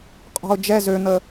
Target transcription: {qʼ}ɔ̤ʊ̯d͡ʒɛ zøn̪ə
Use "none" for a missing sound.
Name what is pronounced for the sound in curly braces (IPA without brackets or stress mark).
qʼ